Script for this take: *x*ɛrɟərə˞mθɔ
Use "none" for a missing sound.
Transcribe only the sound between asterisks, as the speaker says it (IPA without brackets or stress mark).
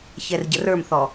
ç